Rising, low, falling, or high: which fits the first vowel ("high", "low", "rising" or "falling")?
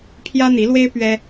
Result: high